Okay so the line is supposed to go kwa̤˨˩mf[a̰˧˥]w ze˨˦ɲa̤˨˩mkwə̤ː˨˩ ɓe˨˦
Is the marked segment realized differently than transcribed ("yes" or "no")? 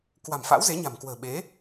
no